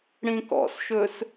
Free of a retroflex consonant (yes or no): no